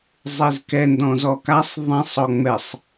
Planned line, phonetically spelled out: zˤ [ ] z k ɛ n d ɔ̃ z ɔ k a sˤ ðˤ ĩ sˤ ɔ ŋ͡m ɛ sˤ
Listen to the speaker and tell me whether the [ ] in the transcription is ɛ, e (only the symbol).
e